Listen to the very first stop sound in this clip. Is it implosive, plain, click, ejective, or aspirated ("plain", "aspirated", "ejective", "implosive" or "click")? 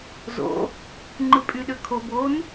click